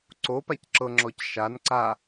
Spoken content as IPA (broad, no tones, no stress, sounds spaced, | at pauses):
ǀ o p a c ǁ ɤ ŋ͡ǁ ɔ c ʃ a n ǀ a